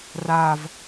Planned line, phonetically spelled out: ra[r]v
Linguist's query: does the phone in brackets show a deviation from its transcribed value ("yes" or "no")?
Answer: yes